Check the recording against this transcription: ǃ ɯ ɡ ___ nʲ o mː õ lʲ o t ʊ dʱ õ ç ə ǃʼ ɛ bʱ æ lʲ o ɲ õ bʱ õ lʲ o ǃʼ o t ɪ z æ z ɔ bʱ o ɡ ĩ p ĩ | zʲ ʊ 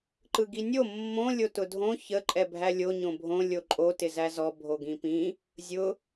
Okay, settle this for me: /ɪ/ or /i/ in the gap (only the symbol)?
i